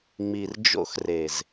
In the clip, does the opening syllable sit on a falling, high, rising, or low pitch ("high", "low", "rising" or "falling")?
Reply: low